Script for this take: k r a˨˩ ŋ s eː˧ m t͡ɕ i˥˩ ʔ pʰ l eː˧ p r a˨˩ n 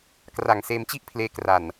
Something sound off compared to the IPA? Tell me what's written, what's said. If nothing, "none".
p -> k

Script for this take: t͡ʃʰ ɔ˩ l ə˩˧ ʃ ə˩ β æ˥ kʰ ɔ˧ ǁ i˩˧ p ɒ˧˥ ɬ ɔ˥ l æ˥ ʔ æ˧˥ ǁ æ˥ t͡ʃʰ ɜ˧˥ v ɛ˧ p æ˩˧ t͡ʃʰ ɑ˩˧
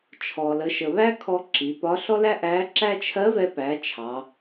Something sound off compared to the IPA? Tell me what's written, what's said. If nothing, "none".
none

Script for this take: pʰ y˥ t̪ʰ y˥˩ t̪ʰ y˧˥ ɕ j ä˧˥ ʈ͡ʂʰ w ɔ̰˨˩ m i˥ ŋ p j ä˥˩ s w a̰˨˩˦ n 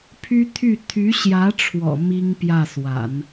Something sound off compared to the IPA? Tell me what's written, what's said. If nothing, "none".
none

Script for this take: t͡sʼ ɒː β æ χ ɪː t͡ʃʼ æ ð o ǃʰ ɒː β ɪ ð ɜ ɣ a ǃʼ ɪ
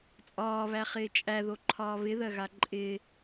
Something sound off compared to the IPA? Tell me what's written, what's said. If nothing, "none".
none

